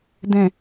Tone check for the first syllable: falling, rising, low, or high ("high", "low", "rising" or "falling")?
low